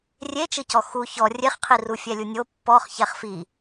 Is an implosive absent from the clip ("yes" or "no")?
yes